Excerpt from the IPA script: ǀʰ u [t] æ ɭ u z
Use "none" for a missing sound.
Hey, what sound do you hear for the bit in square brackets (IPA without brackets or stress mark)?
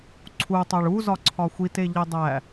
tˤ